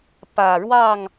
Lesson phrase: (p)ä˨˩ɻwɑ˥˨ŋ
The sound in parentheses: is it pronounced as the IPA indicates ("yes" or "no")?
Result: yes